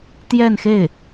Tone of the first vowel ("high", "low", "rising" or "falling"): falling